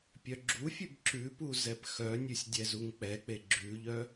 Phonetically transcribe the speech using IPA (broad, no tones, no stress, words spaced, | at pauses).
pʲœɡ͡ǁufʲʉb ǁʉpu zɛpxœnʲʉsʲ dʲɛzuŋk͡pɛk͡pe ɡ͡ǁʉʎœ